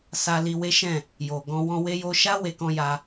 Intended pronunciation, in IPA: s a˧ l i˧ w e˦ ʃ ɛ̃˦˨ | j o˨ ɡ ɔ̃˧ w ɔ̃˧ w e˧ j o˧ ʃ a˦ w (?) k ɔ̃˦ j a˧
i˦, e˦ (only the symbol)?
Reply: e˦